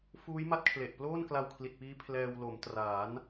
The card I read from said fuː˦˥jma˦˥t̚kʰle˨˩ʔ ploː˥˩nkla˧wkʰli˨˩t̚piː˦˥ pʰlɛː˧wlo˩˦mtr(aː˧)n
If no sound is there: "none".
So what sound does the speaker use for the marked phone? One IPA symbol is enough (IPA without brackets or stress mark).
aː˩˦